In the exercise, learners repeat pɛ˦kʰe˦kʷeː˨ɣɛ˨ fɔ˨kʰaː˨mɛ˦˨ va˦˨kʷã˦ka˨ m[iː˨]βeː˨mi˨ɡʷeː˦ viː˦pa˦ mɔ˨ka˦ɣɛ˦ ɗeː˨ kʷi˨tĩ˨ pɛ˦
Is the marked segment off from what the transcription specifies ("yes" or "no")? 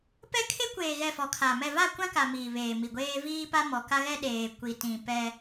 no